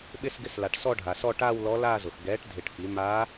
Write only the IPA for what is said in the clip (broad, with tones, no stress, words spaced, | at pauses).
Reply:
ɓɪ˥˧sɡɪ˧˥sla˩ʈ sɔ˥˧ɖʱa˩sɔ˥˧ ʈaː˥˧wlɔ˧˥laː˥˧zʊ˩x ɡɛː˩˥ʈ dʱɪ˧˩ʈfi˩˥ ma˧˥